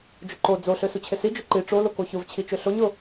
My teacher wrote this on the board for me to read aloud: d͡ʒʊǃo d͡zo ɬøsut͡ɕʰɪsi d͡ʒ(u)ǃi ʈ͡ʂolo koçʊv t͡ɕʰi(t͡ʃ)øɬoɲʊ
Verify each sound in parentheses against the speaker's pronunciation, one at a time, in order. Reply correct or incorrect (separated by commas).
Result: incorrect, correct